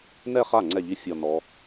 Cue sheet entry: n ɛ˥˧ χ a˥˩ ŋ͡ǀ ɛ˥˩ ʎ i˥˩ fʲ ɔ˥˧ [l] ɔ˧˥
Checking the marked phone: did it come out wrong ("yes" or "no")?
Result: yes